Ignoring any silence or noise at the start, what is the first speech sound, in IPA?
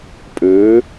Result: pʼ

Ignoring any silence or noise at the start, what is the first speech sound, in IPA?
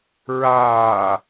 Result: ɹ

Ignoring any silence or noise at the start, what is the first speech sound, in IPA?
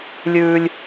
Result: lʲ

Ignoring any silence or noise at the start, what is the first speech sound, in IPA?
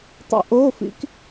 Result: tˤ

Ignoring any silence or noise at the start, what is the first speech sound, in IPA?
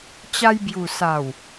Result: t͡ɕ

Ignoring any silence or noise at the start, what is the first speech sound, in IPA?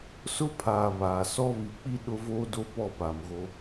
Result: s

